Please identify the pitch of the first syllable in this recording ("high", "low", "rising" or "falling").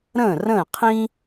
falling